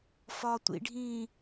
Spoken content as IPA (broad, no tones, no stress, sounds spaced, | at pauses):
f ɒ tʷ ḭ ɖʱ ĩː